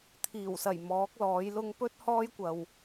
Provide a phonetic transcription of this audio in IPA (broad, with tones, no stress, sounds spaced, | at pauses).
t̪ʰ iː˨˩ w s ɐ˨˩ j m ɔː˨˥ k̚ l ɔː˨˥ j l ʊ˧ ŋ p ɵ˥ t̚ h ɔː˥ j kʷ ɐ˨ w